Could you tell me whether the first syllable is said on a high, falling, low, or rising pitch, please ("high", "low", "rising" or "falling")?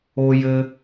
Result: high